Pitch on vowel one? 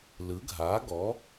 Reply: rising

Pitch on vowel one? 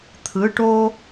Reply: rising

